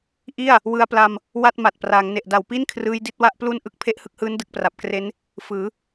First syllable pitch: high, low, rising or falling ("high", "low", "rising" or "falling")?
falling